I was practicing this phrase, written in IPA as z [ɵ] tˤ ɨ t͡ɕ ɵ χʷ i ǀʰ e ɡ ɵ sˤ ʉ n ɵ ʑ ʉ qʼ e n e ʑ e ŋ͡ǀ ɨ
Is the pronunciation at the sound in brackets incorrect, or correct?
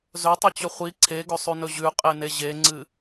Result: correct